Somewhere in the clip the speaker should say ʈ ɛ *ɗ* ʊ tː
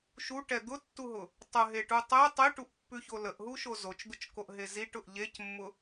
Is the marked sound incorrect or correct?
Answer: incorrect